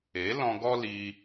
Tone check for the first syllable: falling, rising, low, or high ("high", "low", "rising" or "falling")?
rising